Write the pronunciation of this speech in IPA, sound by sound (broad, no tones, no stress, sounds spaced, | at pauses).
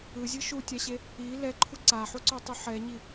ɯ zʲ ɯ ʃ u tʲ a ɕ e | i l ɛ ǃʰ u ǀ a ħ u ǀ o tˤ u ħ ɛ ɲ i